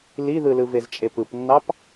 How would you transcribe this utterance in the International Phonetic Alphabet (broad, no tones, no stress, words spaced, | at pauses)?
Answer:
liðɯlɯvez t͡ʃʼepɯpnːɑp